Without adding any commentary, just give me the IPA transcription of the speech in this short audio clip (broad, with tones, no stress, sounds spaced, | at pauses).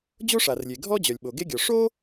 d͡ʑ o˥ ʂ a˩ r lʲ e˩ ɡʱ ɔ˥ d͡ʑ œ˩ lʲ ɓ o˩ ɡ e˥ ɡʲ ɔ˩ ʂ o˥